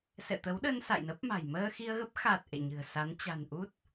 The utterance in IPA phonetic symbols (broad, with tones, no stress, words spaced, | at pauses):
sɛ̰˧˨t̪ə˨˦wɗə˧n sa̰˧˨jnə˦˥p̚ma̤˨˩j məː˧ xi˧ə̯ɣə˦˥p̚xa˨˩t̚ ʔḛ˧˨ɲɨ̤˨˩ə̯sa˨˦n t͡ɕa̤˨˩n ʔu˦˥t̚